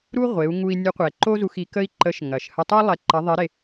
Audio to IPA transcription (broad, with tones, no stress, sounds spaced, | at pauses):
ɾ u˥ ʁʷ e˩˧ u̯ ŋ u˧ i̯ nʲ ə˧˥ qʷ ɛ˩ ǃ o˥ z u˧ x i˩˧ k ə˥ i̯ ǃ ə˧˥ ʃ ŋ ɐ˩ ʃ h ə˧ tˤ u˥ lˠ ɛ˧ ǃ ɐ˧˥ ðˤ i˧˥ ɾ e˧